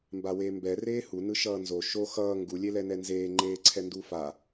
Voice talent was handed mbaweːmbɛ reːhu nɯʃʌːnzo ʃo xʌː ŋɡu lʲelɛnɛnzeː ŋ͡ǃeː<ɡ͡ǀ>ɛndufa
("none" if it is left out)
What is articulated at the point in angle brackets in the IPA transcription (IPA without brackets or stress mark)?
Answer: ǀʰ